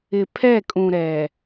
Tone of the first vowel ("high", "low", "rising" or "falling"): low